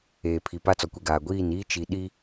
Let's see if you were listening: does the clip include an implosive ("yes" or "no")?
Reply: yes